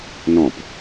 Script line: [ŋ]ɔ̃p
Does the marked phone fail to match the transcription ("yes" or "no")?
yes